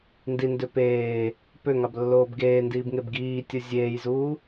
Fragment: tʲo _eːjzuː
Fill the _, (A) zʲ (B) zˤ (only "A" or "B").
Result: A